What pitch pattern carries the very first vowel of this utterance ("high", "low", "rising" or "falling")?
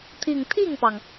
falling